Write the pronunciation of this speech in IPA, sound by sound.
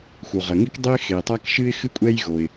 x u˩ ʁ ɐ˩ ŋ i˥ k dˤ ɘ˥ ɪ̯ x e˩ tˤ a˥ k ʃ ɨ˥ ɪ̯ x ɨ˥ kʷʼ ɛ˥ j ɣ o˩ ɪ̯

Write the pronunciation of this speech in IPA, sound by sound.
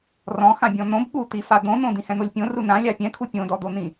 r ɔ̃ x ã bʲ ɔ̃ n̪ õ b ɠ u t̪ i f a d̪ õ n̪ õ d̪ ĩ h ɛ̃ n̪ o lʲ pʲ õ r u n ã lʲ a pʲ ɛ̃ kʰ u pʲ õ d ɔ d̪ o n̪ ĩ

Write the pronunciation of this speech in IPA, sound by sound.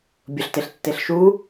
bʲ ʊ ɬ t e ɬ tː e ɬ ʃ u

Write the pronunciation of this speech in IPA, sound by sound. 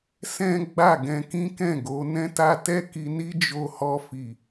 s ɛ̃˦ ɡ͡b a˦˨ ɡ ɛ̃˧ k ĩ˦ k ɛ̃˦˨ ɡ o˨˦ n ɛ̃˦ t a˦ t ɛ˦ k i˧ n i˦ d͡ʒ o˧ h ɔ˧ f i˨

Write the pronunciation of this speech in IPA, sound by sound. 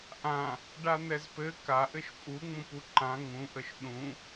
ʔ ã | ɖ a n̪ ɛ z p ɘ k a ʔ ɘ ʃ pʼ u ŋ͡m ũ p u ǃ ã ŋ ũ ʔ ə ʃ ɗ ũ

